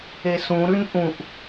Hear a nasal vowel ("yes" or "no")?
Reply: yes